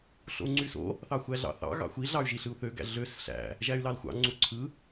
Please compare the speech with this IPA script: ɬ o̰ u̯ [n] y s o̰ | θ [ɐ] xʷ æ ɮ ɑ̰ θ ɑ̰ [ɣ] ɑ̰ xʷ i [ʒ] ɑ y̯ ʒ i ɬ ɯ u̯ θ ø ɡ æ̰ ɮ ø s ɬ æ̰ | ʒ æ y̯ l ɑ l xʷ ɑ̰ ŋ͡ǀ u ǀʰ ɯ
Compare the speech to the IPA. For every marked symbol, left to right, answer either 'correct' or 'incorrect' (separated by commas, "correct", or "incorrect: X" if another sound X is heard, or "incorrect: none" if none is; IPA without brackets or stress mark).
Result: incorrect: ŋ͡ǀ, incorrect: ɑ, correct, incorrect: ɮ